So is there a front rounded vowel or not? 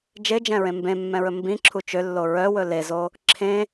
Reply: yes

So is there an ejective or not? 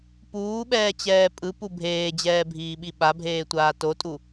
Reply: yes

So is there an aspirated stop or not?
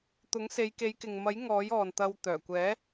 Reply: no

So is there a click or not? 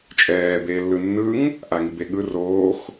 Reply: no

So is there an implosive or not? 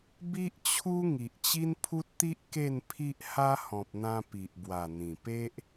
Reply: no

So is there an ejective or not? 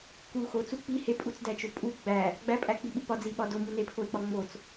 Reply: yes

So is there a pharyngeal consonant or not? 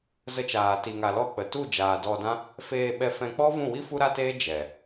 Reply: no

